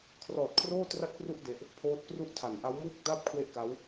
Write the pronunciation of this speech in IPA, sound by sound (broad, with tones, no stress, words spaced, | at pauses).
kʰrɔː˨˩t̚kʰroː˥˩ tra˥˩t̚pru˥˩ʔ de˦˥ʔ | pʰoː˦˥t̚kru˥˩ʔtʰa˨˩n ʔa˦˥wmuː˥˩k̚daː˥˩p̚ kʰwe˥˩ʔka˦˥w